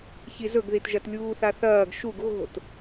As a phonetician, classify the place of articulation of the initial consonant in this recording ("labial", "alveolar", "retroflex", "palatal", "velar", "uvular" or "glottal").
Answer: palatal